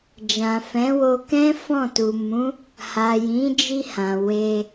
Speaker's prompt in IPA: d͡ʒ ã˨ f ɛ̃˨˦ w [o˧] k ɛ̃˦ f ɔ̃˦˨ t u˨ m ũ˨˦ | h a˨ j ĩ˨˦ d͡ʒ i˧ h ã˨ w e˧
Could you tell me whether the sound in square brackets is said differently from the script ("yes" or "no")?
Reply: no